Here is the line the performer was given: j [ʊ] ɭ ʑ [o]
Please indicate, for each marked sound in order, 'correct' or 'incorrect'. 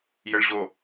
incorrect: ə, correct

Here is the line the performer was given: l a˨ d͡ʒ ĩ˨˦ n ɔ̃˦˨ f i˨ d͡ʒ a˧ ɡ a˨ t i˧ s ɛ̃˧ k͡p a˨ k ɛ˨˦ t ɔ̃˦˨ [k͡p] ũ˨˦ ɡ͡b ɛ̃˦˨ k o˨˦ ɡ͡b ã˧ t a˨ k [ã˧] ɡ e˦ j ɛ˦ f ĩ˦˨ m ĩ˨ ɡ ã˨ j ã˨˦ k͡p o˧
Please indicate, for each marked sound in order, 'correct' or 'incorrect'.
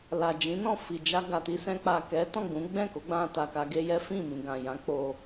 incorrect: ɡ͡b, incorrect: a˧

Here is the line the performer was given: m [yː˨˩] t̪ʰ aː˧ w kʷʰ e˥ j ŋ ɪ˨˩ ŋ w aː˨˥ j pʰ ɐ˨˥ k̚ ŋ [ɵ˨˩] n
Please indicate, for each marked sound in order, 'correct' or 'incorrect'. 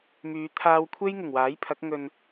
incorrect: yː˨˧, incorrect: ɵ˧

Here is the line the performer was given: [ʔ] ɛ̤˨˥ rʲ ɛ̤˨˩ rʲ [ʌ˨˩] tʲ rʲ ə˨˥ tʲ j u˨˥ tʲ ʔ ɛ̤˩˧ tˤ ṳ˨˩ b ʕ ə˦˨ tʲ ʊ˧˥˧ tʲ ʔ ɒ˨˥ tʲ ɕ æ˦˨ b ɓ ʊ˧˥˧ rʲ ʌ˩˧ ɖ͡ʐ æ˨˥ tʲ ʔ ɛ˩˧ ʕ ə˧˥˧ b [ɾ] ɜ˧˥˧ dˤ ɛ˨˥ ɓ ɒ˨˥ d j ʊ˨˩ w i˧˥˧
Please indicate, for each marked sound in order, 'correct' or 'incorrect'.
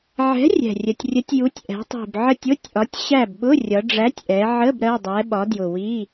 incorrect: ʕ, incorrect: ə˨˩, correct

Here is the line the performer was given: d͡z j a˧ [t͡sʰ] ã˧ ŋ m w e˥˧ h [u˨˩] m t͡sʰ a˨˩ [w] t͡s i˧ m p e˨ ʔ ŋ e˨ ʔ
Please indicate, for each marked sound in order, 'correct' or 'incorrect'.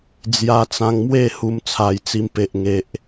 incorrect: t͡s, incorrect: u˧, incorrect: j

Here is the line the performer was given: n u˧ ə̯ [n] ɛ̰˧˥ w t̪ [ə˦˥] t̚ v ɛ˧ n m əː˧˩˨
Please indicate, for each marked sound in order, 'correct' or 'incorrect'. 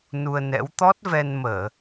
correct, incorrect: ɔ˦˥

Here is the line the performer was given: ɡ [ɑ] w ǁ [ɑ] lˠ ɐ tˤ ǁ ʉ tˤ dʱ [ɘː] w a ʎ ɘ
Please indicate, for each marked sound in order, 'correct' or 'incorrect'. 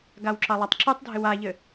incorrect: a, correct, incorrect: ɘ

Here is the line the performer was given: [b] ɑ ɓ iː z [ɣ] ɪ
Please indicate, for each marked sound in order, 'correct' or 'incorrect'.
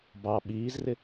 correct, incorrect: r

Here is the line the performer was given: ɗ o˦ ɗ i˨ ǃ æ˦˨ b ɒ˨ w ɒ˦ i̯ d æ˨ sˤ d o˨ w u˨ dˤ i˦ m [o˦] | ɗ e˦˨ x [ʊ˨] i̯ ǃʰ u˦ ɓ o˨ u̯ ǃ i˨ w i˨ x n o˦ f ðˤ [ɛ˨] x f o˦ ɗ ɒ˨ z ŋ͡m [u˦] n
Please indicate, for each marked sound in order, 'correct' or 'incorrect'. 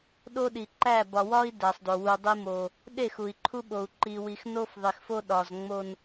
incorrect: o˨, incorrect: u˨, incorrect: e˨, incorrect: o˦

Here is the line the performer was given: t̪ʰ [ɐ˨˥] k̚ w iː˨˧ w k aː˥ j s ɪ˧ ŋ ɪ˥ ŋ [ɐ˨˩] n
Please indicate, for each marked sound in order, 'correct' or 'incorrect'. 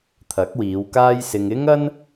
correct, incorrect: ɐ˥

